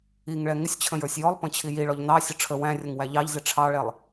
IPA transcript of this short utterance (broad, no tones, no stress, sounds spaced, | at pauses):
i ŋ ɭ ɛ ŋ ɪ sʲ t͡ɕʰ ə̃ j ə˞ sʲ j ɔ lˠ p ə̃ t͡ɕʰ i j i ɭ ɔ ʎ n ɑ sʲ ʊ ʈ͡ʂʰ ə w æ̃ rʲ ə ŋ w æ ʎ ɑ ʎ z ɪ ʈ͡ʂʰ ɑ ɭ ɛ lˠ